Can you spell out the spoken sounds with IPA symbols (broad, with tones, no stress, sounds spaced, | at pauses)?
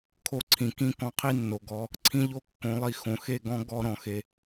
kʰ o˧ ǀʰ ĩ˨ k ĩ˦ k ɔ̃˧ qʰ i˦ nː o˨ ɡ ɔ˧ | ǀʰ ĩ˦ ʎ o˦ kː õ˨˦ lˠ i˧ x õ˨ x e˦˨ ɡ ɔ̃˦ ɡ ɔ˦ ɾ ɔ̃˨ x e˧